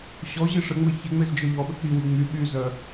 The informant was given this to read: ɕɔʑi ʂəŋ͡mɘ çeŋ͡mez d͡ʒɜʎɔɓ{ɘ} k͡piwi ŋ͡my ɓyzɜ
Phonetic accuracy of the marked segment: correct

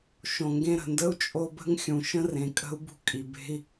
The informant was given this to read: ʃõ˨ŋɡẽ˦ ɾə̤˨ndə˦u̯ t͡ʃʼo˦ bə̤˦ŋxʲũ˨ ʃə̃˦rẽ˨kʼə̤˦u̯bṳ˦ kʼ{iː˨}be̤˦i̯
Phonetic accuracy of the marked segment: incorrect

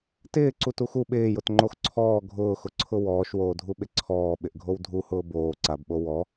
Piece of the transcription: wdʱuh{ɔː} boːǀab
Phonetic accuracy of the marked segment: incorrect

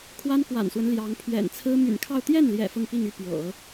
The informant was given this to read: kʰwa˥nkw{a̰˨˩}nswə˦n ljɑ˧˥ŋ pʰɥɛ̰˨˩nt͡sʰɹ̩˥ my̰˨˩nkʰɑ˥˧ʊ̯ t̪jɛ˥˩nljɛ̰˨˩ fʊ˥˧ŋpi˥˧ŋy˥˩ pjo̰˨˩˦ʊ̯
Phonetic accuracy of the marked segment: correct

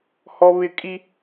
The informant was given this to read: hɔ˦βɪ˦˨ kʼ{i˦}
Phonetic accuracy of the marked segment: correct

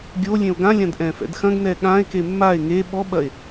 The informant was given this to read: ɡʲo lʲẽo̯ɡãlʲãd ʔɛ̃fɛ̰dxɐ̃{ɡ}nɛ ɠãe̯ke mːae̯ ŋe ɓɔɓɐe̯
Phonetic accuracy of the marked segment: correct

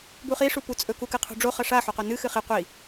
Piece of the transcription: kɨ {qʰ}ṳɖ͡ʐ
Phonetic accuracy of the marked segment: correct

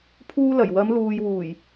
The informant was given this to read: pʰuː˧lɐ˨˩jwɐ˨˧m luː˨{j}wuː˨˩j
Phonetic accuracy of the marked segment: correct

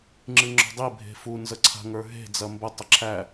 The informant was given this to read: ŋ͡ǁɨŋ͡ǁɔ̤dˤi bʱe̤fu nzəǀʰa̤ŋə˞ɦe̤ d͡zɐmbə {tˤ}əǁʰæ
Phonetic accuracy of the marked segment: correct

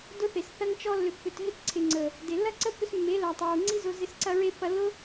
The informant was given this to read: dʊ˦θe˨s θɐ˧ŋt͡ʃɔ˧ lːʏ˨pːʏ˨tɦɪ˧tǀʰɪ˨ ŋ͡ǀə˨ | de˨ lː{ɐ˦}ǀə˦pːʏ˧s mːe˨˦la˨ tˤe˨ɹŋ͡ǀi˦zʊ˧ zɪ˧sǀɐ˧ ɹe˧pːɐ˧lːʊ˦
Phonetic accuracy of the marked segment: correct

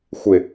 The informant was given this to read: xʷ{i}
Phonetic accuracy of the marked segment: incorrect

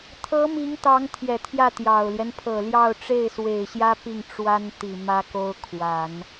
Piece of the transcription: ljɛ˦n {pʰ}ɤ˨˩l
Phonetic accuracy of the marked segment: correct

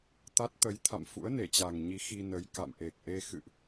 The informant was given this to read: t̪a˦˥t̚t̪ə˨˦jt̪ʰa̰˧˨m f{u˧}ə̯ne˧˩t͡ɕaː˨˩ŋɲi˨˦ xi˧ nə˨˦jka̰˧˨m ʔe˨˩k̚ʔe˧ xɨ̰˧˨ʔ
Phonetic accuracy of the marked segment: incorrect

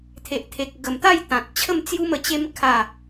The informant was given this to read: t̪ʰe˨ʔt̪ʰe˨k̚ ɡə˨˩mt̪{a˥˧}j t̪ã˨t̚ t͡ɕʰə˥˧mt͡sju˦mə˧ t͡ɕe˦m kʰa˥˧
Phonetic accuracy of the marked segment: correct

